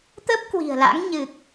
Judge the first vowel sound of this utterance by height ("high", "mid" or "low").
mid